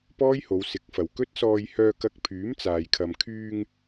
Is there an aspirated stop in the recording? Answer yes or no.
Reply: yes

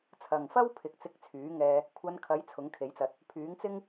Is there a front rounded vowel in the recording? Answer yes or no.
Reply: yes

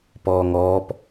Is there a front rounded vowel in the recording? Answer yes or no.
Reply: no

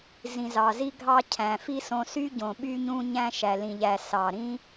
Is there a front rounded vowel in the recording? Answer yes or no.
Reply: yes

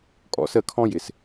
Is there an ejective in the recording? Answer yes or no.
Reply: yes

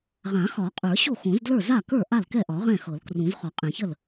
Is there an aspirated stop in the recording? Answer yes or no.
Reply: no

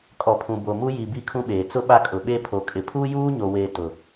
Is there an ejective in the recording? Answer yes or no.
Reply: yes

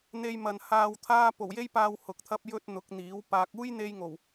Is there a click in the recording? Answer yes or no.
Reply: no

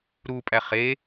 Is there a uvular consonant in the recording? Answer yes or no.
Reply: yes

